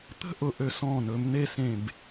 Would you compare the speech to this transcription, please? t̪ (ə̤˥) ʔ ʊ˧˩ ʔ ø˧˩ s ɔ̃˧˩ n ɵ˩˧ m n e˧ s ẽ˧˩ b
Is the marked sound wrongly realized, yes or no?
no